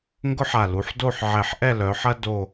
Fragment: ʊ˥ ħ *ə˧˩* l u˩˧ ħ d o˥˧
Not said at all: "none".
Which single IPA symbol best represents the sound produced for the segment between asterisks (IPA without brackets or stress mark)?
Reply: a˧˩